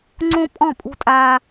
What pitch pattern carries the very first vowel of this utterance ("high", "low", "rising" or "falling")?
high